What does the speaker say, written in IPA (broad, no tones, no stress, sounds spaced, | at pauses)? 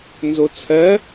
n z o t͡sʰ ɜ